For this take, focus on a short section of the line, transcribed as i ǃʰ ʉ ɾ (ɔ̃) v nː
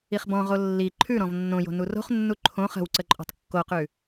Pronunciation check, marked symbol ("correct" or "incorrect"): correct